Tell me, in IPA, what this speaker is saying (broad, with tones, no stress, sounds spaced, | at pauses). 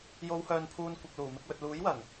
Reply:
j o˨˧ w h œː˨ n pʰ uː˧ n kʷ ɪ˨ k̚ l uː˨˩ m ɪ˧ k̚ w ɵ˨ t̚ l uː˨˥ j w ɐ˨˩ ŋ